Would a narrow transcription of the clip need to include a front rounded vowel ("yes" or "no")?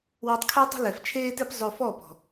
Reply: no